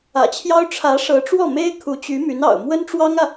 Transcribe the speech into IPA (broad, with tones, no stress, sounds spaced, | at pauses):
ä̰˨˩ t͡ɕʰ j ɑ˥ ʊ̯ ʈ͡ʂʰ ä˧˥ ʂ ɤ˧˥ ʈ͡ʂ w ɔ˥˩ m e˥ ɪ̯ kʰ u˧˥ t͡ɕ y˧˥ m y˧˥ n ɑ̰˨˩ ʊ̯ m w ə˥ n ʈ͡ʂ w ɑ˥ ŋ ä˨